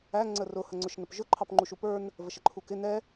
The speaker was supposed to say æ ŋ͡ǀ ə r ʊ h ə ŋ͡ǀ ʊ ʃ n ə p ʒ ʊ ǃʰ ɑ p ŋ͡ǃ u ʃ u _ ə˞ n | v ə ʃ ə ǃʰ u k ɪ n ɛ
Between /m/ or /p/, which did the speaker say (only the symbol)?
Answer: p